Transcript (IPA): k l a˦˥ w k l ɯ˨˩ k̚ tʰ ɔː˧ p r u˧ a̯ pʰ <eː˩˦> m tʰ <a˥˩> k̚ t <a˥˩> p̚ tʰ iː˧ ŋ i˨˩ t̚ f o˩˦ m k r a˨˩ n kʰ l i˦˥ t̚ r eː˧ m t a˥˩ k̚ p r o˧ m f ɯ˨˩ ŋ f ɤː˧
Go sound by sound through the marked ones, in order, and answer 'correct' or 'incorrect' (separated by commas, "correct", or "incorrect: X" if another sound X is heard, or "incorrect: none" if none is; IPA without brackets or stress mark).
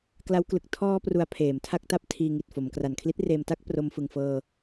correct, correct, incorrect: a˦˥